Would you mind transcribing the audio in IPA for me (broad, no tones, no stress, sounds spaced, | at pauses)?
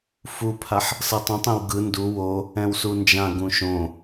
f u pʰ a ħ | s ɤ tˤ ũ tˤ ẽ w ɡ ɯ n d u w o | ɛ̃ w s u n d͡ʒ ã ɡ ũ ʃ õ